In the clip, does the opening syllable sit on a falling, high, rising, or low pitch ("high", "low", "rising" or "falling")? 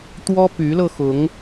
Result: high